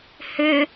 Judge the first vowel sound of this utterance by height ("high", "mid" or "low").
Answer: high